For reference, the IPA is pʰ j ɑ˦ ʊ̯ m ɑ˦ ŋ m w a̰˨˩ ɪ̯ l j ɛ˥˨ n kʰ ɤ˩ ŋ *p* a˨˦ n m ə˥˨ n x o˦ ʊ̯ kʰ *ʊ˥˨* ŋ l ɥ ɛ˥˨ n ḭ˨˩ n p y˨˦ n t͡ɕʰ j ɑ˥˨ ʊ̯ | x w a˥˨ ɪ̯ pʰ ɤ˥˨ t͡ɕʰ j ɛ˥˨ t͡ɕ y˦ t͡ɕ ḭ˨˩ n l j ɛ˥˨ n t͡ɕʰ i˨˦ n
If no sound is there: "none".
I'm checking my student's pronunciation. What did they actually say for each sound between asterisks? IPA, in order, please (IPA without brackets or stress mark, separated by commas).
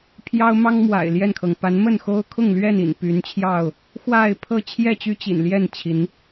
p, ʊ˥˨